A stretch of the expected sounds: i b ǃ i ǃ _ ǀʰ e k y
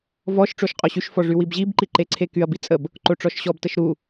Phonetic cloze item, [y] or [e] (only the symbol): e